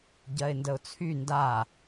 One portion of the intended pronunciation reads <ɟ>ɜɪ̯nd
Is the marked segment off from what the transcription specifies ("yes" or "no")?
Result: no